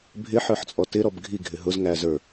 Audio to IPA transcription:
bʱ ɪ ħ ə˞ ħ t͡sʼ ɔ t ɪ ɾ ɔ b ɡʱ i ɡʱ ɪ ɦ ʊ z ŋ æ z ə˞

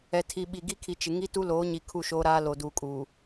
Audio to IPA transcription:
ɛ˨ tʰ i˨ ɓ i˨ ɡ i˦ kʰ i˨ t͡ʃ ɪ˨ ŋ i˦ t u˦ l oː˨˦ ɲ i˨ kʰ u˦˨ ʃ oː˦ ɾ aː˦ l o˨ d uː˨ kʼ uː˨

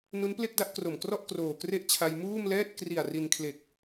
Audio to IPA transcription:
n u˦˥ n p l e˥˩ k̚ d a˥˩ ʔ k r o˨˩ m k r ɔ˥˩ ʔ k r oː˨˩ k r e˥˩ ʔ t͡ɕʰ a˧ j m uː˥˩ m l ɛː˥˩ t̚ k r i˨˩ a̯ r i˧ n kʰ l e˨˩ k̚

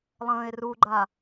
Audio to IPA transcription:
lˠ ə̃ː e̯ r u ɡ͡ǃ a

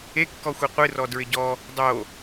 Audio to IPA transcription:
e kː ɔ xʷ e qʷ ɨ r ɔ d ɹ ɪ ɟ ɔ | dˤ o

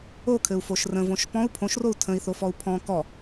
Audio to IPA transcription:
o kʰ ɘ u̯ f o ʃ r ə̃ v õ ʃ p ɔ̃ u̯ pʰ õ ʃ r o u̯ tʰ ə̃ i̯ θ o f ɔ u̯ pʰ ɔ̃ k ɔ

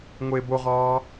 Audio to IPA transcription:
ŋʷ e b o ʁ ɒː

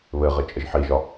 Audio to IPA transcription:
β ɘ ʁ ɘ t͡ʃʼ ə ʒ ħ i ʒ ɒ

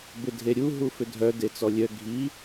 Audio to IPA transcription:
b ɪ dʱ e ɾʲ u ɦ u f ʏ dʱ œ d e t͡s ɔ lʲ œ ɡʱ i

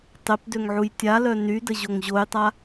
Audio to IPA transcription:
tˤ e p d ø ŋ ʕ u j tʲ a l œ n y d ə ʑ o ŋ ʑ o j tˤ a

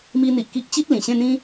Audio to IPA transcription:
m i˧ n̪ i˨ ʔ k i˦ ʔ t͡ɕ i˦ t̚ l ĩ˨˩ ɕ ẽ˥˧ n̪ ĩ˦

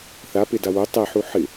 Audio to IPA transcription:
θ a p e d a w o tˤ ɛ ħ u ħ ɪ

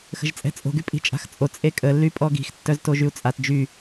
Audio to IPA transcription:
x ə̤ ʒ t͡sʼ ɛ̤ t͡sʼ o̤ ɡ y pʼ i̤ t͡ʃʼ a̤ x t͡sʼ o t͡sʼ e kʼ ə lː y pʼ ɔ ɡ i̤ x tː œ z t o ʒ y u̯ t͡sʼ a t d͡ʒ y

